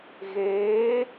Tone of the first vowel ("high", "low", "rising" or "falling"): rising